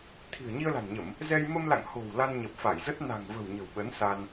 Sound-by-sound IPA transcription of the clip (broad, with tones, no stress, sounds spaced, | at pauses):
t̪ʰ i̤˨˩ ə̯ ɲ i˧ ə̯ l a̤˨˩ n ɲ ə˧˩˨ m | z ɛ˧ j m ə˧ m l a̰˧˨ ŋ h o̤˨˩ w l a˧ n ɲ ə˨˩ p̚ f a˧˩ j z ə˦˥ t̚ n a̤˨˩ ŋ v ə̤˨˩ w ɲ ə̤˨˩ w ɓ ə˨˦ n s a˧ n